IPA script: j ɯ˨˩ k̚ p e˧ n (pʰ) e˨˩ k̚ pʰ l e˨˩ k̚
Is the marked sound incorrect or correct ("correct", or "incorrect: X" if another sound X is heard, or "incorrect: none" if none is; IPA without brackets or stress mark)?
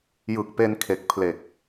incorrect: kʰ